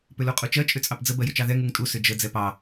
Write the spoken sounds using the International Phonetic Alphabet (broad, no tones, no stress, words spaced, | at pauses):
pʏluqʼut͡ʃɜ t͡ʃʼʏt͡sʼɑpd͡zə bɜjʏt͡ʃɑðɛ ŋuŋtʼu sʏd͡ʒə d͡zɛpɑ